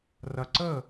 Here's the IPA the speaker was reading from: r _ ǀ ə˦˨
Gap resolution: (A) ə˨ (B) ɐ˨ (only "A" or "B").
B